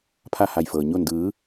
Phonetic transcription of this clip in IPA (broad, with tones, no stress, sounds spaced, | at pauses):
pʰ a˥˨ h a˧˩ j f ɤː˩ ɲ o˧˩ n d ɯː˩˧